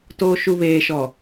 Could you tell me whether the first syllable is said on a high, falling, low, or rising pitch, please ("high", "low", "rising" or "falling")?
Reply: low